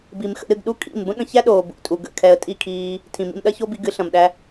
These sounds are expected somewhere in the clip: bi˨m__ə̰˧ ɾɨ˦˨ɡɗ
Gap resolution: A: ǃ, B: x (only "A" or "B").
B